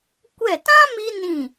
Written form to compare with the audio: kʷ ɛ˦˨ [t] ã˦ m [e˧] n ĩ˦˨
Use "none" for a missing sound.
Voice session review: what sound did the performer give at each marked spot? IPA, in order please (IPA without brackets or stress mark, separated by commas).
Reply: t, i˧